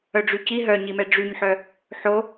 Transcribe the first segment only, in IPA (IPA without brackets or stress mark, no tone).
œ